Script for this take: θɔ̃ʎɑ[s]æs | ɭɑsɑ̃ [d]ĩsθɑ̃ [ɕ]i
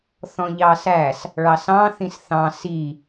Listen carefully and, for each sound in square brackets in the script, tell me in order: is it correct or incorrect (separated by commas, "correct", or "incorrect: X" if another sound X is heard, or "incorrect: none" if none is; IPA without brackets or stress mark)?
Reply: correct, incorrect: θ, incorrect: s